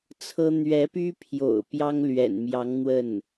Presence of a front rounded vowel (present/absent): present